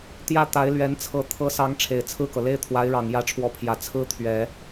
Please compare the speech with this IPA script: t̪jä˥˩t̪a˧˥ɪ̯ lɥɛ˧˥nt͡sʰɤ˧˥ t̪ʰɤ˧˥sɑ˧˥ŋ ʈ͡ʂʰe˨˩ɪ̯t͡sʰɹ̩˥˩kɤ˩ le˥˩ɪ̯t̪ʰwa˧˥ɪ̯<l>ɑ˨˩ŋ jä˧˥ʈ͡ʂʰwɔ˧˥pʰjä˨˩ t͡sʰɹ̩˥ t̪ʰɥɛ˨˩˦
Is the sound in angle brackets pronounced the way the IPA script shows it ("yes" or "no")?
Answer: no